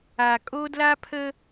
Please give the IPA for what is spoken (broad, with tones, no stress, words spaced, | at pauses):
a˨ kʼo˦ dla˦pʰə˦